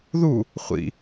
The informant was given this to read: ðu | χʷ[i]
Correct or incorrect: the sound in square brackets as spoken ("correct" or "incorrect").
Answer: incorrect